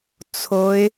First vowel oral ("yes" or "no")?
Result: yes